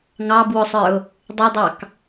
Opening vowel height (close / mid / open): open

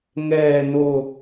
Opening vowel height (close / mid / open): mid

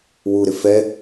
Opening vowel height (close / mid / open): close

